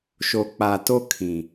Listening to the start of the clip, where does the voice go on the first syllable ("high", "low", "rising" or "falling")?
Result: low